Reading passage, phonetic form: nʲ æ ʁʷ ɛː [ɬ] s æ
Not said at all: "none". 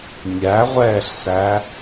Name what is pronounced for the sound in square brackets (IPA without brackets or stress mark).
ɬ